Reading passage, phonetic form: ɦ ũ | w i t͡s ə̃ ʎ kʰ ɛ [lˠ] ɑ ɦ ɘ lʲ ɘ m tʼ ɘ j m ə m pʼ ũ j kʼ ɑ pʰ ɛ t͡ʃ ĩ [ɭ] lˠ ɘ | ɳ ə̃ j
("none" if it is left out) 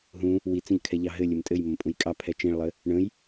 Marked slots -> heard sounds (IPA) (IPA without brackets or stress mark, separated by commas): ʎ, ɭ